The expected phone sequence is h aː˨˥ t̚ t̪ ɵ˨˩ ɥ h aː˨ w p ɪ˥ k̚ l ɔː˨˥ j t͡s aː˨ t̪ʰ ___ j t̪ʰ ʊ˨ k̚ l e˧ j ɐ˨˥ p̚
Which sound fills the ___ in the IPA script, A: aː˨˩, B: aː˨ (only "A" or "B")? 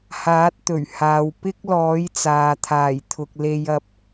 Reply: A